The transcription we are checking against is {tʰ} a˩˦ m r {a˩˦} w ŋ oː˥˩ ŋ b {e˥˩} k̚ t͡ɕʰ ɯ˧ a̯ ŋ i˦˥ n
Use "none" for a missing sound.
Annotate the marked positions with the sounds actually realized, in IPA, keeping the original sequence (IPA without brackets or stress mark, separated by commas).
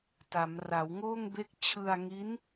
t, a˩˦, e˥˩